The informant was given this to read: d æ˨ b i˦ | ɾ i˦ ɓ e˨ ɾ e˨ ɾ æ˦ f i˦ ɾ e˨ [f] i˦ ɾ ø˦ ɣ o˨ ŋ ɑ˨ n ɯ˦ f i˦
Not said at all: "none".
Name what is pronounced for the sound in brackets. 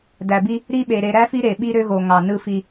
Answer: ɓ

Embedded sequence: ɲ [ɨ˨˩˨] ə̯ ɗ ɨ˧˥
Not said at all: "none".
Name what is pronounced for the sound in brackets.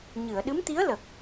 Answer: ɨ˨˩˨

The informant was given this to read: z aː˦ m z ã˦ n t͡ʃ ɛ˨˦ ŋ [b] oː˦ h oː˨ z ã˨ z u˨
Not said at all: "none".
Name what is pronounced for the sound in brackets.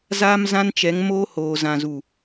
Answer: m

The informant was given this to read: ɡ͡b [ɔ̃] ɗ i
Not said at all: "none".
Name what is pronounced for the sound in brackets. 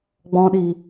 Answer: ɔ̃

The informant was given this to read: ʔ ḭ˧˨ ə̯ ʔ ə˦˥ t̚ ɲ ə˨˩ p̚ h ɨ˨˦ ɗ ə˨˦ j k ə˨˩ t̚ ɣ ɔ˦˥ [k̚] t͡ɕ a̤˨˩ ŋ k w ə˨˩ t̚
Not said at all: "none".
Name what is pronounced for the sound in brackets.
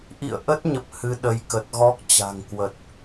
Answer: k̚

